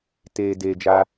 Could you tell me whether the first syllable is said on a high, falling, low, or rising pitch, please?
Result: low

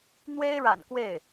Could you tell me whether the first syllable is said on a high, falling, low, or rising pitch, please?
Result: high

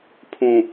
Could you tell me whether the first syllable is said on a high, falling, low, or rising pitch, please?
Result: low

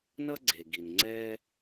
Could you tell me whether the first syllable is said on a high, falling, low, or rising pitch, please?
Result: high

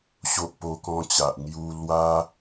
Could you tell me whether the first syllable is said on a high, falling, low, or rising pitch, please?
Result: high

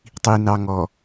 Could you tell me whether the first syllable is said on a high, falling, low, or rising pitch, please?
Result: low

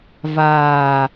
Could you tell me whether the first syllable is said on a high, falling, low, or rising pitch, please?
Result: low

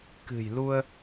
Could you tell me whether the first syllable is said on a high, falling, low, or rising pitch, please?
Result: low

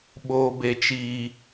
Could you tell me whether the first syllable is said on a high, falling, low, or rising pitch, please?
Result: high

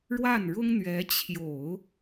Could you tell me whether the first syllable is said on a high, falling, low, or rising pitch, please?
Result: falling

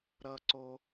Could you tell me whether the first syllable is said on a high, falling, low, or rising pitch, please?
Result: high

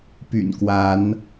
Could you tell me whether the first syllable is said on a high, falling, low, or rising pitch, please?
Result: low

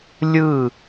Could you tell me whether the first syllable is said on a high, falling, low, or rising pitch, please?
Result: falling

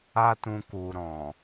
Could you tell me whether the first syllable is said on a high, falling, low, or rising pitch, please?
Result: high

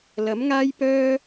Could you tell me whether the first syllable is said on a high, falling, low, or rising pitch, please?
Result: rising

